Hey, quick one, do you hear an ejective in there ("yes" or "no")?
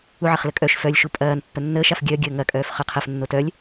yes